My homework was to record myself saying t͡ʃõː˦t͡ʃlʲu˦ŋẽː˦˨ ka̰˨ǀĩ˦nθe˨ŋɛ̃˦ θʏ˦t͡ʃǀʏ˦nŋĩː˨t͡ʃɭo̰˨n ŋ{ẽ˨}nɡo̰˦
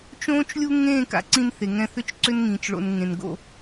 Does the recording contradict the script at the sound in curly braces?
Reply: no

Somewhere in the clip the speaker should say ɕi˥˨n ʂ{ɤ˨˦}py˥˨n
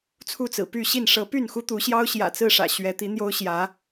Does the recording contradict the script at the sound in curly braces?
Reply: no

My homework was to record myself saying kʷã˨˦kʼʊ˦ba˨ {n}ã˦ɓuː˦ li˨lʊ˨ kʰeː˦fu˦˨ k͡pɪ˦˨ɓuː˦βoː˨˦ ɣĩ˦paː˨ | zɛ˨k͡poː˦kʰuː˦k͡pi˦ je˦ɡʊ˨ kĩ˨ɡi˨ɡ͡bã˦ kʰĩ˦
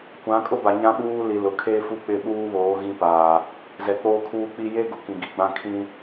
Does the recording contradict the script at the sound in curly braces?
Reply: yes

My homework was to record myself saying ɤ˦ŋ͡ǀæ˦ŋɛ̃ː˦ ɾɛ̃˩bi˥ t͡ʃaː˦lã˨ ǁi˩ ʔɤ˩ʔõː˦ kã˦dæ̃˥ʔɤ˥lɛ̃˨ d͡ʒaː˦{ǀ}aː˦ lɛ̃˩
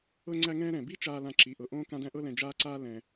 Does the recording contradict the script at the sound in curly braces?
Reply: no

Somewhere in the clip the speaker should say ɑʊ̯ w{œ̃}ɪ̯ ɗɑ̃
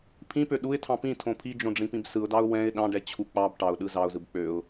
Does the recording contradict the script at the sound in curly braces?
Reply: yes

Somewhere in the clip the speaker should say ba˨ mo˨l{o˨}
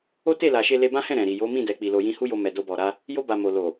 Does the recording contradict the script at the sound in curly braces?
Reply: no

